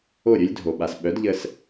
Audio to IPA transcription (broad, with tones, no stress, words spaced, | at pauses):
o˦˨ɾʲɵ˦lʲdʱo˨ ɓa˨sɓœ˨˦dʎə˧s